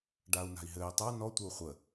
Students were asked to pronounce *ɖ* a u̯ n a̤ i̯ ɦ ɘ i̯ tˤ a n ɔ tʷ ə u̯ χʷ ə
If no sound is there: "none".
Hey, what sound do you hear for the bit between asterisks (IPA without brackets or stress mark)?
ɖ